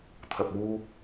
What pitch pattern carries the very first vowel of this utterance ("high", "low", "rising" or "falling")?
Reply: low